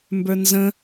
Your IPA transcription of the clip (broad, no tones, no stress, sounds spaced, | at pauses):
m b ə˞ n z ə̃